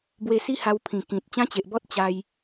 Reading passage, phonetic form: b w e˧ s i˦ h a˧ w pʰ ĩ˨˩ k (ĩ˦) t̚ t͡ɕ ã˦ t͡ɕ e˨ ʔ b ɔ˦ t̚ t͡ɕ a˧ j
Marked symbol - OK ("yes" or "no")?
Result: no